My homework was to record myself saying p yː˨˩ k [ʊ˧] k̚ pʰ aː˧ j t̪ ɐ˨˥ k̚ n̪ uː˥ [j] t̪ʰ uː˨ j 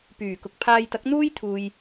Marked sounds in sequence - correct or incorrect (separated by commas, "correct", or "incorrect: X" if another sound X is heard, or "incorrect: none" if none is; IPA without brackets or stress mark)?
incorrect: ʊ˨, correct